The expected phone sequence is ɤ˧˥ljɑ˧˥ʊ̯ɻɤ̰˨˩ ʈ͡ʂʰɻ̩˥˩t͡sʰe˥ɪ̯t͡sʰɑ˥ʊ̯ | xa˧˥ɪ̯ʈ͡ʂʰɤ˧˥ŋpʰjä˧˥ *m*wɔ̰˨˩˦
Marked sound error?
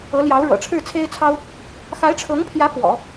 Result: yes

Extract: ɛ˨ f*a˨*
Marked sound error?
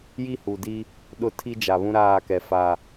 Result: no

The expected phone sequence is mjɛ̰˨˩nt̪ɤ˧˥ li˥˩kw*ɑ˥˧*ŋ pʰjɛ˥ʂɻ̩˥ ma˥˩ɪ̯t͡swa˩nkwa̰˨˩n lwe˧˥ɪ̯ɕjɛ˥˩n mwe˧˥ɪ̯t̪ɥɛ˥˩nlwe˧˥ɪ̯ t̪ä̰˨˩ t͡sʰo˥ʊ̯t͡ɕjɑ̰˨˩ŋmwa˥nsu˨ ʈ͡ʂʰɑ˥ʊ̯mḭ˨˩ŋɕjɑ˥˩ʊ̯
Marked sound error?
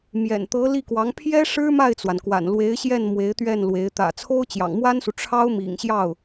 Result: yes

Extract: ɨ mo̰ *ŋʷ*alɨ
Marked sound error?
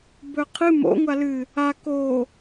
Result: no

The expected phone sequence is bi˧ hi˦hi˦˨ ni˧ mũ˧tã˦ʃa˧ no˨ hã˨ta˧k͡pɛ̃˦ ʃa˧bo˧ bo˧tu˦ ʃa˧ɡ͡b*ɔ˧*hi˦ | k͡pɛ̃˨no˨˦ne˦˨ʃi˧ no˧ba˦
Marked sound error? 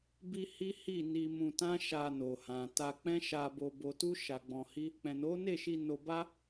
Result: yes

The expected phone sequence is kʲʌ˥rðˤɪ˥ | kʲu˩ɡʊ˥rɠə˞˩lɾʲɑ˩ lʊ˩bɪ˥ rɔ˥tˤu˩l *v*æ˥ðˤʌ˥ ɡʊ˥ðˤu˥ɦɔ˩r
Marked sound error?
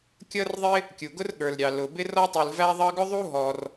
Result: no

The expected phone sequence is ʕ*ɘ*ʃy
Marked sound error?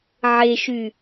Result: yes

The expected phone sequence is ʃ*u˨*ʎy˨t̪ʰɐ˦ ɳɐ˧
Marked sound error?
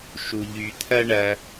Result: no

